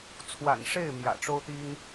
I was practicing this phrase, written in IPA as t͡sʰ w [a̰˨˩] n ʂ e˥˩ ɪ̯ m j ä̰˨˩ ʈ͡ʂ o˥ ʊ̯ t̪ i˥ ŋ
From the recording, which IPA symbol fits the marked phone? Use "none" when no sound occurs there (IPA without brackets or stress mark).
a̰˨˩